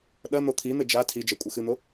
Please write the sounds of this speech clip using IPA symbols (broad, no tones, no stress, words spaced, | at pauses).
ɗɐ n̪ot̪ʰin̪ɘ d͡ʒa tʰid͡ʒɛ kʷʼɘxɨn̪o